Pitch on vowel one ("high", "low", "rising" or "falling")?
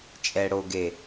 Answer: low